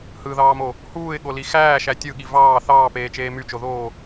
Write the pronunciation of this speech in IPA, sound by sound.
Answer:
h ɯ ð ɑː m o | h uː ɪ̯ ɠ o l i x æː ʃ æ tʲ ɯ ɠ i v ɑː θ ɑː p eː t͡ʃ eː m y t͡ʃ o ð oː

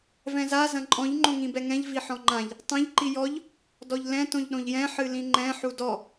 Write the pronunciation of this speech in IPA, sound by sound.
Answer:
v ɛ̃ z a z ɐ̃ ǃʼ ɔ̃ ʎ ŋ͡ǃ õ ŋ ĩ b ɛ ŋ ɛ̃ ʎ v i ħ ɔ̃ ŋ͡ǃ ã ʎ | tˤ ɐ̃ ʎ ǃ i j ɔ ʎ | d ɔ ʎ l ɛ̃ t õ ʎ ɗ õ ʎ j ɛ̃ ħ ɨ l ĩ ŋ͡ǃ ɛ̃ ħ u d ɔ

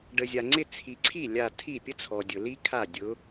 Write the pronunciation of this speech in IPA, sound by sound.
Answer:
ɖ ə˨ zʲ a˨ ŋ͡ǀ ɪ˥˧ t͡sʰ i˨ ǀʰ i˥˩ lʲ a˥˧ tʰ i˥˩ pʲ ə˥ t͡sʰ ɔ˨ dʲ ʊ˨ l i˥ kʰ a˥˩ dʲ ʊ˧˥

